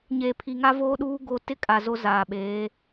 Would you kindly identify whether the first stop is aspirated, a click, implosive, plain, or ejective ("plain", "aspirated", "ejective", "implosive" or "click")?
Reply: aspirated